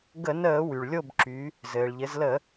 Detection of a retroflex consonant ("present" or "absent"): present